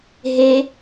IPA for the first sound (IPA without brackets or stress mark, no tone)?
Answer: ɦ